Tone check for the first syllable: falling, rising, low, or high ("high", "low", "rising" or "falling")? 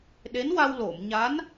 rising